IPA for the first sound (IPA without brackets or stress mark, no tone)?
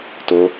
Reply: t